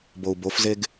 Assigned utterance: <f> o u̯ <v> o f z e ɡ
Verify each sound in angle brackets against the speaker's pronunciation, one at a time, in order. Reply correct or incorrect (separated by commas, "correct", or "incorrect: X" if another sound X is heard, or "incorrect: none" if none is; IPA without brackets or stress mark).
incorrect: b, incorrect: b